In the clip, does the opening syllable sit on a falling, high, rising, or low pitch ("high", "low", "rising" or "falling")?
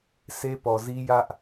high